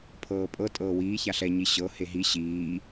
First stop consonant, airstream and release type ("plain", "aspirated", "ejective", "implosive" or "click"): aspirated